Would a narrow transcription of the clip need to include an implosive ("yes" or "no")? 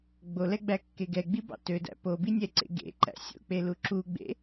no